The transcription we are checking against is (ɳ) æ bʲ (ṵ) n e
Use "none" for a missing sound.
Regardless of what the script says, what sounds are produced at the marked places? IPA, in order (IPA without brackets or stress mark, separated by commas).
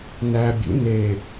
n, ṵ